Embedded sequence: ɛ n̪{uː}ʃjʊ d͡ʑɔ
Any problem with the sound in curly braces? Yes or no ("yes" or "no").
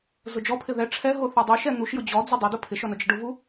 yes